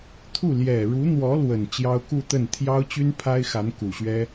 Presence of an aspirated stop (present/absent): present